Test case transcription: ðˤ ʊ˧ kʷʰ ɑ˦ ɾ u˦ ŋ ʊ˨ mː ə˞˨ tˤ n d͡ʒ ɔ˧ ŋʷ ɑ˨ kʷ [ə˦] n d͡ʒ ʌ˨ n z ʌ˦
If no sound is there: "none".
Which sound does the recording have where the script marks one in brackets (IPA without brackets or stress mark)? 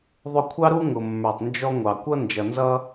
ʌ˦